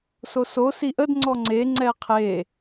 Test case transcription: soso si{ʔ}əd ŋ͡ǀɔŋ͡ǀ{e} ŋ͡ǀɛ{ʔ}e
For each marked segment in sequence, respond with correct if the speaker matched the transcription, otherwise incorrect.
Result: correct, correct, incorrect

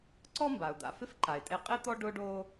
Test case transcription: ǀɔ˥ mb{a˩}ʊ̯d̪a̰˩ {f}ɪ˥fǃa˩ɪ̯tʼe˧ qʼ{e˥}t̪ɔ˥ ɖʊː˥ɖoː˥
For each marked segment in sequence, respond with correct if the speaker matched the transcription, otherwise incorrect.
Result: correct, correct, correct

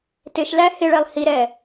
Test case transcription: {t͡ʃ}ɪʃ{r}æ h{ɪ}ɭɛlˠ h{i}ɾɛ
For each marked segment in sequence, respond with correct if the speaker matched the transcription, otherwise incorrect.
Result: incorrect, incorrect, correct, correct

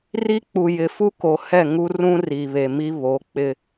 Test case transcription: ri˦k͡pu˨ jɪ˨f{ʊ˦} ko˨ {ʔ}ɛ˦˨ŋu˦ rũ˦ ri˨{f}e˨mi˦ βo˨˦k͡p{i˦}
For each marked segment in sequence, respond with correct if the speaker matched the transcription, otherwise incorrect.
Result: incorrect, incorrect, incorrect, incorrect

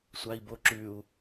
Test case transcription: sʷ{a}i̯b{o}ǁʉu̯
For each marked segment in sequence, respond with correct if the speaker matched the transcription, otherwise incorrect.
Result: correct, correct

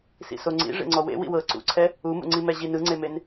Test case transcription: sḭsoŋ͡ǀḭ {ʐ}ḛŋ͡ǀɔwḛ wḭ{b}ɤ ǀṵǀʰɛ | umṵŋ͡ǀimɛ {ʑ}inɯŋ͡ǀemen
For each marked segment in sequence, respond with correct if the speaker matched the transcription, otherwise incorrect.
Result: correct, incorrect, correct

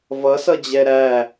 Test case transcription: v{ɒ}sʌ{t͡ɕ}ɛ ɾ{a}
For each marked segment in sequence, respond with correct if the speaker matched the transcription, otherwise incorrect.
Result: incorrect, incorrect, incorrect

